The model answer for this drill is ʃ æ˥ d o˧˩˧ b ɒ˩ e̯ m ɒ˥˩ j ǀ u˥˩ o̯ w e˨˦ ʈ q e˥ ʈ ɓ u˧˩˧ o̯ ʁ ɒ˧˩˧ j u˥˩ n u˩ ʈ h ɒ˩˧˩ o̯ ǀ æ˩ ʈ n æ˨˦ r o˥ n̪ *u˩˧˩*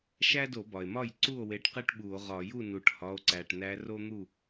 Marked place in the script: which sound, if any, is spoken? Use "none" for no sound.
u˥˩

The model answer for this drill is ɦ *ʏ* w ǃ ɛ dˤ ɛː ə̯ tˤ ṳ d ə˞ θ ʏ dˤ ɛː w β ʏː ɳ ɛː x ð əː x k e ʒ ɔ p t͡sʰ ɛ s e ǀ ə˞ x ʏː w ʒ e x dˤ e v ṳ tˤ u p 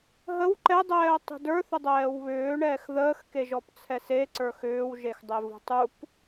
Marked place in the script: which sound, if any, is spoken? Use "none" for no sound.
ə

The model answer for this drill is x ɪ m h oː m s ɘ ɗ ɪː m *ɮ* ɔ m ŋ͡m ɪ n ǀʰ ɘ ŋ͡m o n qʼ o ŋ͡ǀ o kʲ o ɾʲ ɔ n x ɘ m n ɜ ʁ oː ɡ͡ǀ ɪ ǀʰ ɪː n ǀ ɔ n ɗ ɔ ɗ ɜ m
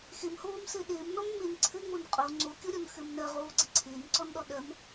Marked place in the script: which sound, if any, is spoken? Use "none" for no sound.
n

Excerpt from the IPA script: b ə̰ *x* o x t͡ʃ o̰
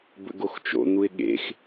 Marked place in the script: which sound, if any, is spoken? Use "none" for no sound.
ɡ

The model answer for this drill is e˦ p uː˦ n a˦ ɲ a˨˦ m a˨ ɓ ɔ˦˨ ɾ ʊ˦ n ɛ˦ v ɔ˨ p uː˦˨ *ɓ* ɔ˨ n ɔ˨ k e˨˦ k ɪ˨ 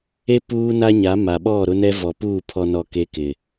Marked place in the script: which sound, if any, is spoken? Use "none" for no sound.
pʰ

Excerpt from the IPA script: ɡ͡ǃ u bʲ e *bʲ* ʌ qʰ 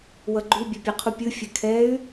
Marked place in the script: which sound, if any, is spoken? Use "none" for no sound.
pʲ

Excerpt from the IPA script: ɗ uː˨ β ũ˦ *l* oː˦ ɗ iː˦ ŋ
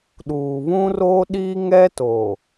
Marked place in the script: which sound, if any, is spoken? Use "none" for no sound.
r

